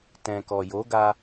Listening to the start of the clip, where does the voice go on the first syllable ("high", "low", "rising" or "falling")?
low